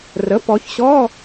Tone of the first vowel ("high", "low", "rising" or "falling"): rising